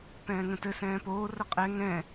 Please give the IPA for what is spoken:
pɛ̃ːŋə̃tɘ sɛ̃ːpoː rəqʼɛ ŋɛ̃

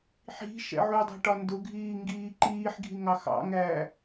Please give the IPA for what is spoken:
ħi̤ ʃɛ̰ʕudˤɛ̤ ʈɒndʊɡʱiː ŋɡiːǃiːħɡʱi ŋɑxɑ̰ŋæː

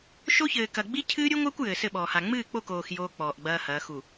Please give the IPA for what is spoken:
ʃo˦çɘː˨kɐ˨ ɡ͡bi˦cʰɨː˦ ɾʲu˦ŋʷɘː˦kʷ jɘː˨sɘ˦˨ɓɔː˨ha˨ ŋ͡mɨː˦˨k͡po˦˨koː˨x joː˦k͡pɔː˨ʔɡ͡bɐː˦hɐː˨˦ xu˨

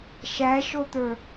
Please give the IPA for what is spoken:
ʃæʃot̪ə˞

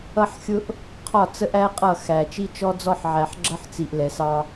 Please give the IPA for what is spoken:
ʌ˦ħxʲʊ˦ʔ | qʰɒ˦˨t͡sə˦ʔæ˦ qʼʌ˦˨xæ˨ t͡ʃi˦t͡ʃɔ˦d͡zɔ˦ħʕæ˨ħ ɡ͡ǁʌ˦ħt͡si˨ʔ lɛ˨sɑ˦

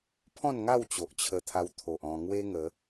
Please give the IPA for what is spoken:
pʰɔ̃˥˧nŋa˥˧w t͡ɕo˨ʔt͡ɕʰə˧t̪ʰa˧w t̪ʰo˨ʔɔ̃˧ŋwe˦ ŋə˨˦

